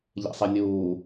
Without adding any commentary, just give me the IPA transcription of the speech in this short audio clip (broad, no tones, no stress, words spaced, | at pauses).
ʎḛsˤenʲuː